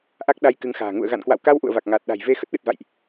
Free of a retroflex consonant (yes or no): yes